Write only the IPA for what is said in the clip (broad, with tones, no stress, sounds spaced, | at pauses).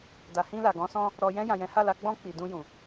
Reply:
d a˨ h ĩ˧ l a˨ ɡ ɔ̃˨˦ s ɔ̃˧ | ɾ ɔ˨ j ɛ̃˧ j ã˨ j ɛ̃˨˦ h a˦˨ l a˧ ɡ͡b ɔ̃˧ k͡p i˨ d ũ˧ j ũ˨